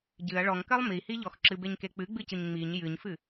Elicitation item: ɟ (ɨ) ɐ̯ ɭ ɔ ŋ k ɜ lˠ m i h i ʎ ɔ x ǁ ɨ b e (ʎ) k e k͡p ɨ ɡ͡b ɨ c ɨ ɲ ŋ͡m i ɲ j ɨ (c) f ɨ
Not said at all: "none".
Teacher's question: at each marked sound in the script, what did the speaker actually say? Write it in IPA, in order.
ɨ, ɲ, ɲ

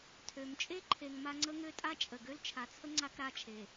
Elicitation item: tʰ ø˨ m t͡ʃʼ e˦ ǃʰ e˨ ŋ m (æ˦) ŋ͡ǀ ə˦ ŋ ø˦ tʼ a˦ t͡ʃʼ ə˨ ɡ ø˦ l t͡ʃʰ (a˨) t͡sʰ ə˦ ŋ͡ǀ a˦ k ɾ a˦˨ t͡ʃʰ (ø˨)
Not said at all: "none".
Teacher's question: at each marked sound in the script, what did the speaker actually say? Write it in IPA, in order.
a˦, a˨, e˨

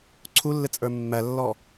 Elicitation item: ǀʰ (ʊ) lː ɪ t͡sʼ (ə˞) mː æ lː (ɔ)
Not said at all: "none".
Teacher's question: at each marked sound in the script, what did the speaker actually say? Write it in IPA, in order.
u, ə˞, ɔ

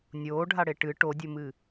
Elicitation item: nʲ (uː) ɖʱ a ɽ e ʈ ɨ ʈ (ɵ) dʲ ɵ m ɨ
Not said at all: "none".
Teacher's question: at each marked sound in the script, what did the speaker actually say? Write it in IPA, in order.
oː, o

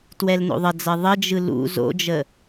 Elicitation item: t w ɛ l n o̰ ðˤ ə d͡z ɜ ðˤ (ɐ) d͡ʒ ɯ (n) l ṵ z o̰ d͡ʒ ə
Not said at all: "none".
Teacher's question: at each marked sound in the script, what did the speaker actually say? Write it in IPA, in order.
ə, none

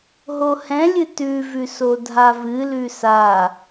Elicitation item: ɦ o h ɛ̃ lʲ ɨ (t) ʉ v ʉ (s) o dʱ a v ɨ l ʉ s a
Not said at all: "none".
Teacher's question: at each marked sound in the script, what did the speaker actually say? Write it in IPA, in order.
t, s

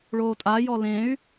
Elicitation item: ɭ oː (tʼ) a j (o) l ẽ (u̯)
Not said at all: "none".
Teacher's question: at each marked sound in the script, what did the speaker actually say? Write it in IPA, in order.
tʼ, ɔ, y̯

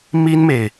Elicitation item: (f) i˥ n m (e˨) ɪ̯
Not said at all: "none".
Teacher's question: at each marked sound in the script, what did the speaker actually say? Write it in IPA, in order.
m, e˨

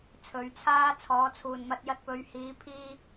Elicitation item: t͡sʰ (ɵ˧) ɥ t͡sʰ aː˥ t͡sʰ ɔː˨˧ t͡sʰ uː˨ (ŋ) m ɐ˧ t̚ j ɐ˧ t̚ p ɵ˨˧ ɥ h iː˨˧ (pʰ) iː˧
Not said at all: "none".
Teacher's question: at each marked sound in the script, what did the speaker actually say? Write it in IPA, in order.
ɵ˨˥, n, pʰ

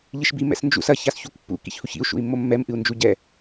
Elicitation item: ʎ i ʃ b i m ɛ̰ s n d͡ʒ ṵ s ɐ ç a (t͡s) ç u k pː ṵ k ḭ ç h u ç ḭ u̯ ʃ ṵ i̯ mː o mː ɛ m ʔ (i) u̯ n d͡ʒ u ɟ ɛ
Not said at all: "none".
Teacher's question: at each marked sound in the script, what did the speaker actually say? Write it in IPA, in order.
s, ɨ

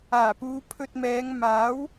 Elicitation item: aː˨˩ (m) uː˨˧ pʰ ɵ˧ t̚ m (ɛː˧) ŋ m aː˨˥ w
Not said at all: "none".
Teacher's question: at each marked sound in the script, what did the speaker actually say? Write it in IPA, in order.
p, ɛː˨˧

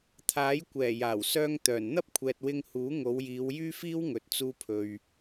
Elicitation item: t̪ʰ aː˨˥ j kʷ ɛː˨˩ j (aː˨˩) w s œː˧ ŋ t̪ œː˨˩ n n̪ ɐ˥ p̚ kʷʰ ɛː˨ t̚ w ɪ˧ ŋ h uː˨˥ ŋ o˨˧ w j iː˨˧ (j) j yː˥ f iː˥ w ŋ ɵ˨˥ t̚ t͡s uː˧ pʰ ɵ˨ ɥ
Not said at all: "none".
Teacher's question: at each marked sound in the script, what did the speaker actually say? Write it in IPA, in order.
aː˨˩, w

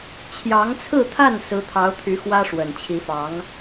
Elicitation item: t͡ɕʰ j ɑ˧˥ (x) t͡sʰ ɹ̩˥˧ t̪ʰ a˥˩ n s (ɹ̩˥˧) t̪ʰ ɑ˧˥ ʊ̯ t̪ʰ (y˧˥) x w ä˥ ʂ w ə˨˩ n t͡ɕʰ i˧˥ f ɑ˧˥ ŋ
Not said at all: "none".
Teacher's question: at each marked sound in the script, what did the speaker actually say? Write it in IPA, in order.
ŋ, ɹ̩˧˥, y˧˥

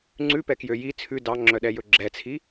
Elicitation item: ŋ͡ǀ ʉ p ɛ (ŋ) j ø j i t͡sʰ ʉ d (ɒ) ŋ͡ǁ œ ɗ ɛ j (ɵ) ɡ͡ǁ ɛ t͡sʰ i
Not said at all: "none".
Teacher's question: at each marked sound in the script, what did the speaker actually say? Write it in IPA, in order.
k, ɑ, ɵ

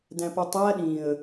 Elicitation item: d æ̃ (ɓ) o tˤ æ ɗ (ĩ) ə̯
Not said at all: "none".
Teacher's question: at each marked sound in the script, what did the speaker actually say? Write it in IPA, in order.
p, ĩ

